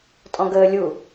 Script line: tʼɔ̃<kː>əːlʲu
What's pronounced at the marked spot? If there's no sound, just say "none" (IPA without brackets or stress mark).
ɡ